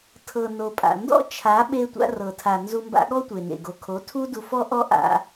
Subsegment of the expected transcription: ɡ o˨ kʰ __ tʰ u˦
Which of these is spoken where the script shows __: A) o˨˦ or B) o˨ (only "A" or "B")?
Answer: A